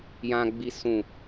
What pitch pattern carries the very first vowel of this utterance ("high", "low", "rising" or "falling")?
low